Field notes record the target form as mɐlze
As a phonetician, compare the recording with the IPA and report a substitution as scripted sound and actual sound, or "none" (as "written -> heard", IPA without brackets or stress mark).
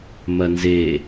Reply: l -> n